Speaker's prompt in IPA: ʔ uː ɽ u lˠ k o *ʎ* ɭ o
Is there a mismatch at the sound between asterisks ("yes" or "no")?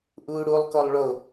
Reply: yes